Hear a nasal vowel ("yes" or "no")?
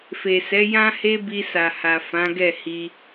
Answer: yes